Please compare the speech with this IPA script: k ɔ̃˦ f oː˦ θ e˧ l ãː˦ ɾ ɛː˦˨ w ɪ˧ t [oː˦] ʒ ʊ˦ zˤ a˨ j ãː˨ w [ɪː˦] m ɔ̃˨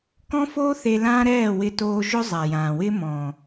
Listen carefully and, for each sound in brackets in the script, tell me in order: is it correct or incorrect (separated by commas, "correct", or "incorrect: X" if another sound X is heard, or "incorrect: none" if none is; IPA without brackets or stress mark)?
incorrect: oː˧, correct